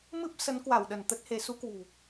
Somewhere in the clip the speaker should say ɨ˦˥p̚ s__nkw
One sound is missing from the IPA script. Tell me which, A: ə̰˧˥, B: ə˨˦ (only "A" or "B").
B